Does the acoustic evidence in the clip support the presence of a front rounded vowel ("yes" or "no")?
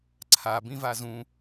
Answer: no